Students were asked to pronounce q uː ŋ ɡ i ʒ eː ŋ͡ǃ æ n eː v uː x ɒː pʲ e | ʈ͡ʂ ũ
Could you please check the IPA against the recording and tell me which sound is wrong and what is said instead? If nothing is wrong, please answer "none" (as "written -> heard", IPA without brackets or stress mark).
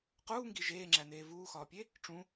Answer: ŋ͡ǃ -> ŋ͡ǁ